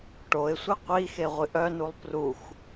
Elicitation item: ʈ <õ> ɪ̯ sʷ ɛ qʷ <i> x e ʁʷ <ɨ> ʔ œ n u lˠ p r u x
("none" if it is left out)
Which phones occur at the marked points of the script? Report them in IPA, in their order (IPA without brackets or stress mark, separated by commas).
o, i, ɨ